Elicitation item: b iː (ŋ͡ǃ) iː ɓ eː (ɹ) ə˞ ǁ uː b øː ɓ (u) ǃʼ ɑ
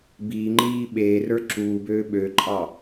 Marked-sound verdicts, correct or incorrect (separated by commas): correct, incorrect, incorrect